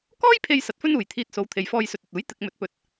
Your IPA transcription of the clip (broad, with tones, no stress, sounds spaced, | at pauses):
k ɔː˥ j pʰ e˧ j s ɐ˧ t̚ f ɵ˥ n uː˨ j t̪ʰ iː˧ t̚ s o˨˧ w t̪ʰ e˨ j f ɔː˧ j s ɵ˨ t̚ ɵ˨ t̚ uː˨˥ j t̪ ɪ˨ k̚ m ɵ˨˥ t̚ p ɵ˨ t̚